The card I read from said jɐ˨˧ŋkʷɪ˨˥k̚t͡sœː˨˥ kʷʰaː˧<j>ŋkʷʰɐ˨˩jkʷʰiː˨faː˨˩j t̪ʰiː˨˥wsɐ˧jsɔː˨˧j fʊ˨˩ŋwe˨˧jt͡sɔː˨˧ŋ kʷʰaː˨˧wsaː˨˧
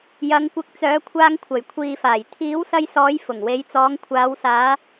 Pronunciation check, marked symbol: incorrect: none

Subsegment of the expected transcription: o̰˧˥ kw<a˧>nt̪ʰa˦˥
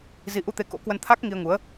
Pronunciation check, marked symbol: incorrect: ə˧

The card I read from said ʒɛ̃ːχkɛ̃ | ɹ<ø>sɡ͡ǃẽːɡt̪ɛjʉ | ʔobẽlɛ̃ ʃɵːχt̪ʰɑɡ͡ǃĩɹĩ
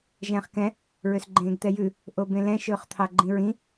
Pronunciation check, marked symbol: correct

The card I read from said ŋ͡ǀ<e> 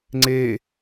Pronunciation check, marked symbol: correct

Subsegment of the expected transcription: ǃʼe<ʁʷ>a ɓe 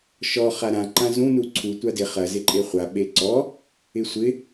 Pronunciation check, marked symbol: incorrect: χʷ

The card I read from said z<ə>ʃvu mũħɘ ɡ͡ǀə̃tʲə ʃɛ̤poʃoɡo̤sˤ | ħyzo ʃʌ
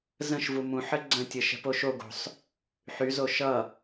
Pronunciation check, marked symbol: incorrect: ə̃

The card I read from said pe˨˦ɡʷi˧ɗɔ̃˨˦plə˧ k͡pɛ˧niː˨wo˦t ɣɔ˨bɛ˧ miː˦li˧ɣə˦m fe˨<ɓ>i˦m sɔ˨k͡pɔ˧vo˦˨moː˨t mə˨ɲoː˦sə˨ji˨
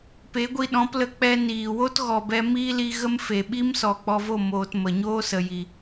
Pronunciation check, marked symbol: correct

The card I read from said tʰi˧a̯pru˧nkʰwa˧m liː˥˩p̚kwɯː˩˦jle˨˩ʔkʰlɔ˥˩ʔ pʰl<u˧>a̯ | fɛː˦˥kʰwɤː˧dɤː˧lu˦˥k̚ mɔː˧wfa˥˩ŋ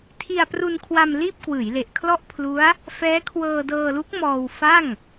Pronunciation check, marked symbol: incorrect: u˦˥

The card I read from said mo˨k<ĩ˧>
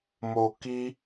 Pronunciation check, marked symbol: incorrect: i˧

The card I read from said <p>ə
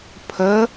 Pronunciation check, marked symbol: incorrect: pʰ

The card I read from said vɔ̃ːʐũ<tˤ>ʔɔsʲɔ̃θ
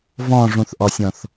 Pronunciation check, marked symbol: incorrect: θ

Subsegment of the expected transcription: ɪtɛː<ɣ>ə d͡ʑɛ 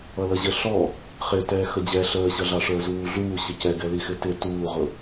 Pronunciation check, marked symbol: incorrect: x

